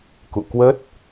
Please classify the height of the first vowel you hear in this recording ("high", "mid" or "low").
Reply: high